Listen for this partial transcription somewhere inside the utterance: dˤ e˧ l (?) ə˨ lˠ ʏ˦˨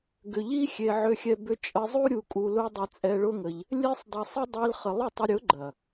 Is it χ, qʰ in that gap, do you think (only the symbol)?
χ